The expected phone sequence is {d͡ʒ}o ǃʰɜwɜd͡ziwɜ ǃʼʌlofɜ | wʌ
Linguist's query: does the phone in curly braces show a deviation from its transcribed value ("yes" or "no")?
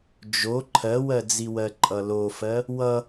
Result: no